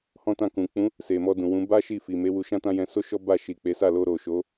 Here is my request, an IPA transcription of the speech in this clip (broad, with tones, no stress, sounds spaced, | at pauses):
h ɔ̃˦ t ã˦˨ k ũ˨ k͡p ũ˨˦ | s e˨ m ɔ˧ d ũ˨ w ũ˨˦ b a˦ ʃ i˦˨ f i˨ m e˨˦ w u˧ ʃ ã˦ t ã˦ j ɛ̃˧ s o˦ ʃ ɔ˦ b a˦˨ ʃ i˨ k͡p e˨˦ s a˦˨ l o˧ ɾ o˨ ʃ o˨˦